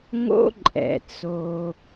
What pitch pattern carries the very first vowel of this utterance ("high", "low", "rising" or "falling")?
high